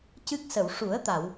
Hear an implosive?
no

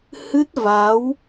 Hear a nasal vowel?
no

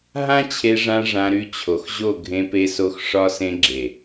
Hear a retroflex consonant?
yes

